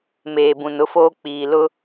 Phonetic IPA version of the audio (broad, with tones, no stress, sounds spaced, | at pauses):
m eː˨ b ũ˨ n ʊ˦ f oː˦ k͡p iː˨ l ʊ˦